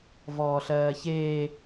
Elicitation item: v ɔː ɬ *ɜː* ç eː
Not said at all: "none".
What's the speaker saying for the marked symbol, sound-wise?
ɜː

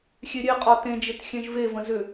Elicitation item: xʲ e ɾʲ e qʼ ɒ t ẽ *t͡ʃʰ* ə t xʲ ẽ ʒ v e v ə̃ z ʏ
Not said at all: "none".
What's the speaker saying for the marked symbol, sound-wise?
d͡ʒ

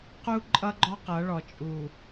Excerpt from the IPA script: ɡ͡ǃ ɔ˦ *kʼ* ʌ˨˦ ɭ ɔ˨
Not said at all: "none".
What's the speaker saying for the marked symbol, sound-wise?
q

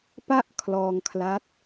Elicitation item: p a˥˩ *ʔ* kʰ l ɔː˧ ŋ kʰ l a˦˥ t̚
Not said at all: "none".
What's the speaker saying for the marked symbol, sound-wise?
ʔ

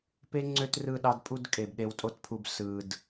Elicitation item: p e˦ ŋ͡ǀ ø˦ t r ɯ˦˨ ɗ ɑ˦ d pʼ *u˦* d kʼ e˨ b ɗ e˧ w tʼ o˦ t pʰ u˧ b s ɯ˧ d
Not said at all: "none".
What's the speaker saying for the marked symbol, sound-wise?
u˦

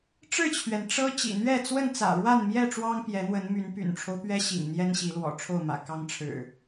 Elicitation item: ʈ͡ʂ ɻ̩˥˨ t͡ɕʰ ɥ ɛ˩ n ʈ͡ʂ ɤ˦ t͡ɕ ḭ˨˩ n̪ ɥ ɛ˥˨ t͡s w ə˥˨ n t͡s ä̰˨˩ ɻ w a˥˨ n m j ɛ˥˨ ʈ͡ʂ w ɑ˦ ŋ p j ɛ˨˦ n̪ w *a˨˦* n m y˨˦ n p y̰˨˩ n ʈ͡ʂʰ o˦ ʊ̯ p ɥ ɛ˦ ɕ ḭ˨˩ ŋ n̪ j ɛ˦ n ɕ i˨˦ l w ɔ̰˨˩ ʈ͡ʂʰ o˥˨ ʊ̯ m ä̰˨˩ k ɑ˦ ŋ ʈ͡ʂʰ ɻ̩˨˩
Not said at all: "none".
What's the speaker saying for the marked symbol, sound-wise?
ə˨˦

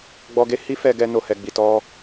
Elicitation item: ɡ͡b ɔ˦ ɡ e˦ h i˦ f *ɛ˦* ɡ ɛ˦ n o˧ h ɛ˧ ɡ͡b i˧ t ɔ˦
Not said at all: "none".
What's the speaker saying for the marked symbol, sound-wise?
ɛ˧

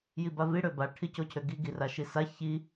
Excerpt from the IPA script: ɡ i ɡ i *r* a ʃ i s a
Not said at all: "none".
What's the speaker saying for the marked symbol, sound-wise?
r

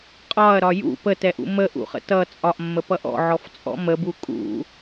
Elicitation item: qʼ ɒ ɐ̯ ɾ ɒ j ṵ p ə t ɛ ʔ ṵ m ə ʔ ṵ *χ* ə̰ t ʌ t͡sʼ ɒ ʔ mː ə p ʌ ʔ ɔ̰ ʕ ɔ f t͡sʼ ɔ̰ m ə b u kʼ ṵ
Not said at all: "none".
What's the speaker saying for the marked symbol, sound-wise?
χ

